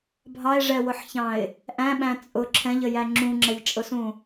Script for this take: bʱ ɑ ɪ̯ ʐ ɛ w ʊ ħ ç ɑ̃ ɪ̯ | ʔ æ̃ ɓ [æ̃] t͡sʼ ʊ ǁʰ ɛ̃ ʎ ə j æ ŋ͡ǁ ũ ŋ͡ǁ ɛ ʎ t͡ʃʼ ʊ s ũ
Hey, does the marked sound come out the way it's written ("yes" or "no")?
yes